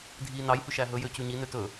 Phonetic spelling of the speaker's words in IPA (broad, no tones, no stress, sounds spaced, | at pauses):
dʱ i n ɑ j h ʉ ʃ æ ɦ ɵ j ø c ʉ ɲ i n ø t ɵ